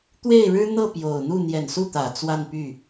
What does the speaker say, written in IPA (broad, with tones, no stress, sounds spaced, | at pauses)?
t̪ w e˥˩ ɪ̯ ɻ ɻ̩˥ n̪ ɤ˥˩ p j o˨˩ ʊ̯ n̪ u˥˩ n̪ j ɛ˨˩ n s u˥˩ t̪ ä˨˩ t͡s w a˥˧ n p y˥˩